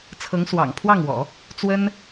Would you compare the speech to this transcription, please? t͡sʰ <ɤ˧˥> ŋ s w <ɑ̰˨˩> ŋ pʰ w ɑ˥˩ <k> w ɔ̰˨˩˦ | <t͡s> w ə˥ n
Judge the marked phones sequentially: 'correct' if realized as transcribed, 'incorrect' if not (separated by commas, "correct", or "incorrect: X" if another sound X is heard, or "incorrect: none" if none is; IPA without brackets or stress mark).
correct, correct, incorrect: ŋ, correct